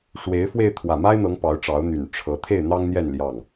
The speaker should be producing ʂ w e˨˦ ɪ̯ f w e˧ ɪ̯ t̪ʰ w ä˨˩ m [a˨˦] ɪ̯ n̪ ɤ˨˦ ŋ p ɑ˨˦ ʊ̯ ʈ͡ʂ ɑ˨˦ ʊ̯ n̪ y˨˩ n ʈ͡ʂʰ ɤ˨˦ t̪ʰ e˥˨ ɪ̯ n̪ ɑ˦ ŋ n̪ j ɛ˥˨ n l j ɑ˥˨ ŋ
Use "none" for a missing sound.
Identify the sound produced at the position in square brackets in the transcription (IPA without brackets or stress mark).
a˦